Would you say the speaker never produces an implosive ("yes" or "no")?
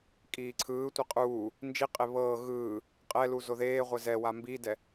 yes